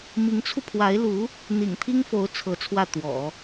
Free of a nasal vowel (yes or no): yes